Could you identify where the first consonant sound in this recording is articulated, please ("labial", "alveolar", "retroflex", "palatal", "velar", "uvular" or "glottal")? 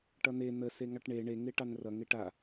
retroflex